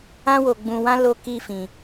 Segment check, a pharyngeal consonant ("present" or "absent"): absent